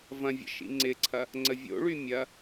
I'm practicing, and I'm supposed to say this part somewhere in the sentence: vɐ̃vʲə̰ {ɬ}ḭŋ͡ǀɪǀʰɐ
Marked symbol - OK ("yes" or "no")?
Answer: no